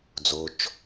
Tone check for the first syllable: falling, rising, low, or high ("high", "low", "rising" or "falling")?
low